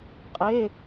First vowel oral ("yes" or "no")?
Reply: yes